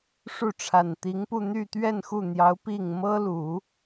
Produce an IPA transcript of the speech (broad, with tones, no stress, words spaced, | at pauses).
ʂu˥˩ʈ͡ʂʰa˨˩n t̪i˧˥ŋpu˥˧ n̪y˥˧t̪ɥɛ˥˧nxu˥˩n̪jɑ˧˥ʊ̯ pi˥˩ŋ mɤ˥lu˨˩˦